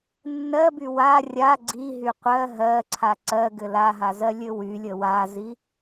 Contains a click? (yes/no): yes